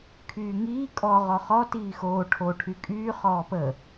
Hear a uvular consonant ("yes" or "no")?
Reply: yes